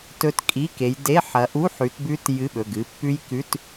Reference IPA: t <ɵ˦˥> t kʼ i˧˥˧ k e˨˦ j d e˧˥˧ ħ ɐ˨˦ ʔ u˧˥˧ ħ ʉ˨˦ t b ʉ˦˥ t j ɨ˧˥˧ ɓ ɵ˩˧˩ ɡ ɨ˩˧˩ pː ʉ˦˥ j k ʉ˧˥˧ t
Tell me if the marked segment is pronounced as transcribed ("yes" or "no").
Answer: yes